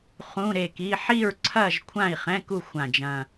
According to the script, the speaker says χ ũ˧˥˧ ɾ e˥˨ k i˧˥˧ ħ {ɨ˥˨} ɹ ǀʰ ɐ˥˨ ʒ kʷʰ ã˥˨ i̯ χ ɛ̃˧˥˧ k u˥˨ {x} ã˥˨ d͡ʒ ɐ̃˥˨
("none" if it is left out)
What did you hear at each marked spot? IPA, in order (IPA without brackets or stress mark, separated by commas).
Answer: i˥˨, xʷ